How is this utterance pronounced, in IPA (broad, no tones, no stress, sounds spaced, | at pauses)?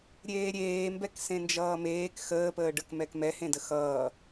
ɾʲ eː ɾʲ eː m b ɛ k s ẽ n d͡ʒ ʌː m eː k x əː p əː ɖ ə k m ɛ k m ɛ h ẽ d ə x ʌː